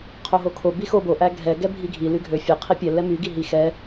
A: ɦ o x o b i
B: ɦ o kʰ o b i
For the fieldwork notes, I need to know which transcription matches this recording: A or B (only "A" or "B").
B